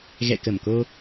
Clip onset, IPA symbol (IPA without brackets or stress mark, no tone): ɣ